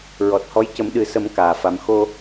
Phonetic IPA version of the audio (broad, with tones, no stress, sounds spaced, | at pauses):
ɹ ɔ˨˩ t̚ h ɔ˧˥ j c ə˨˩˦ m ɗ ɨ˨˩ s ə˨˩˦ m k aː˨˩ f a˧˥ m x o˧